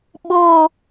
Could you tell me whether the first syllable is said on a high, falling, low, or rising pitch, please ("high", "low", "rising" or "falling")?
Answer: high